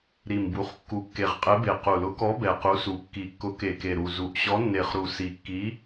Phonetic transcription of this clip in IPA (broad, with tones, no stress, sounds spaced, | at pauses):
ɾ i˨˩ m b u˨˩ χ kː u˨˩ kː e˨˩ ʁ qʼ e˨˥ b e˨˩ q u˨˩ l ʊ˨˥ k ɔ˨˥ b ɛ˨˩ q u˨˥ s u˨˩ kː i˨˩ kː ʊ˨˥ k e˨˩ k e˨˩ ɾ u˨˩ z u˨˩ ʔ ɕ ɔ˨˥ nː e˨˩ χ ɾ u˨˩ s i˨˩ kː i˨˥